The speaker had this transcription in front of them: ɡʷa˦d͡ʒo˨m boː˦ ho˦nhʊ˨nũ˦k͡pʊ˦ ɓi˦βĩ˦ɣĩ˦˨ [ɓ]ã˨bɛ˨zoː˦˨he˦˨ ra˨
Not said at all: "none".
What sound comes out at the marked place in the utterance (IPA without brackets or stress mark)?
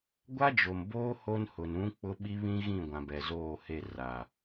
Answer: ɡʷ